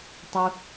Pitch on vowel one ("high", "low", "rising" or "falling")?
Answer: high